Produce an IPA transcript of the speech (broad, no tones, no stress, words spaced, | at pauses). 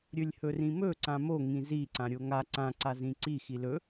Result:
ɾʲɵlʲhɵrĩmɵ ǀãmo ŋĩzi ǀãɾʲoŋa ǀã ǀazĩǀi xilɵ